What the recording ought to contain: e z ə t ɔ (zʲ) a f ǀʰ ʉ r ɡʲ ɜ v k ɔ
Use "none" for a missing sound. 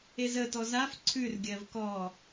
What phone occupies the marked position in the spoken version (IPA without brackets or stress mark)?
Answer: z